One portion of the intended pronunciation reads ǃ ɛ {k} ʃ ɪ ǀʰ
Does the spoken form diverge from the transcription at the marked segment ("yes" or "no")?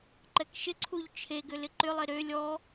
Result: no